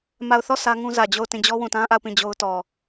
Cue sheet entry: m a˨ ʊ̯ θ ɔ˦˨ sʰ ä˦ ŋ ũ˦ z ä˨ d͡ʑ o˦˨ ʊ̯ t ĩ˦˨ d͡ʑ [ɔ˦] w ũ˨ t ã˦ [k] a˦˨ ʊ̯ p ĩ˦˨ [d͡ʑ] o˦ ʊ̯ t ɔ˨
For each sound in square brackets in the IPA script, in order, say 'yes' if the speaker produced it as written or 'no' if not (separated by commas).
yes, no, yes